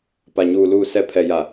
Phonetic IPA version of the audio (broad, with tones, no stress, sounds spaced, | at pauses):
p a˨ ɲ uː˨ l uː˨ s ɛ˨ pʰ ɛ˨ j a˨